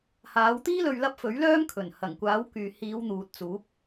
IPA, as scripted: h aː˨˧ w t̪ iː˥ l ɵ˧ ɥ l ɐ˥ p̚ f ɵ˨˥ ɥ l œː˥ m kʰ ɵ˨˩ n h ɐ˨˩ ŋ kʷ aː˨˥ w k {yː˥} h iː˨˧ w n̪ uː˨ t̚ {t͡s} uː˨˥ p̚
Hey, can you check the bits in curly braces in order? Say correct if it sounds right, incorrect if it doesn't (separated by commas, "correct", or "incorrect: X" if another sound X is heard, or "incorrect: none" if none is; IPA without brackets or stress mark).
incorrect: yː˨, correct